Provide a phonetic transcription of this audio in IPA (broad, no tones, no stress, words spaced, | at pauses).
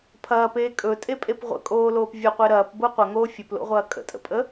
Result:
pʰɐːpeː kʼɵtʼepʼep ʁʷə̰kʼoːloːp vʲəqʷe ɾɐːpbo qʷɐŋoː fʲɵplo̰ʁʷɐː kʼə̰tʼə̰pʼə